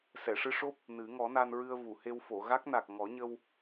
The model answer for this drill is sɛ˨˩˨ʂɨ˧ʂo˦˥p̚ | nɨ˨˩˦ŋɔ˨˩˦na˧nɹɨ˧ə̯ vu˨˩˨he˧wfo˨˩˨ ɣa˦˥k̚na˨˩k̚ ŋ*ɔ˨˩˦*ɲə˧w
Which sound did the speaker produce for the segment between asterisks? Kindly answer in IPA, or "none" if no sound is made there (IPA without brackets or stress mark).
ɔ˨˩˦